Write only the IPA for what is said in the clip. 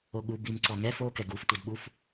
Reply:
o ɠ u b i m ǀ ɔ ŋ ɛ f o k ɛ ɡ u f tʷ ɛ d ɓ u f

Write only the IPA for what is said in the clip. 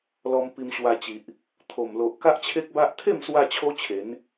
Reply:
l ɔ˧ m p i˧ m ɕ w a˧ t͡ɕ i˨ ʔ | t̪ʰ o˨˩ m l o˨ ʔ k a˦ ʔ t͡ɕʰ e˦ k̚ b a˦ ʔ t̪ʰ e˥˧ m s w a˧ t͡ɕʰ o˦ t͡ɕʰ e˨˦ n

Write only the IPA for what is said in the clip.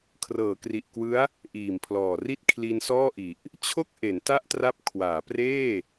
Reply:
kʰ r ɤː˩˦ k r i˨˩ ʔ k w ɯ˦˥ a̯ | ʔ iː˨˩ m pʰ l ɔː˨˩ r i˥˩ t̚ kʰ l i˧ n s ɔː˥˩ ʔ i˨˩ ʔ | t͡ɕʰ o˥˩ k̚ ʔ e˩˦ n t a˥˩ ʔ t r a˦˥ p̚ kʰ w aː˩˦ p r eː˥˩

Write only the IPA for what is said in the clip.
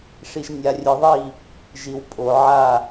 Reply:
ʂ i˨ ʒ nʲ a˨ rʲ ɨ˨ ðˤ i˦˨ | ʒ i˨ w pʼ o˨ ʕ a˦˨

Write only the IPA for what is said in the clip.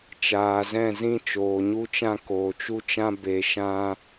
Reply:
t͡ʃ aː˨ z ɛ̃˦˨ z ĩ˦ t͡ʃ oː˨ ɲ u˧ t͡ʃ ã˧ k oː˨ t͡ʃ u˦ t͡ʃ ã˦ b e˧ ʃ ã˧

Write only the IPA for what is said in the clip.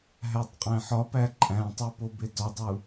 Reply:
ɦ æ tˤ qʼ æ̃ ħ ɒ p æ ǃʼ æ̃ tˤ e p o b e d ɒ dˤ u

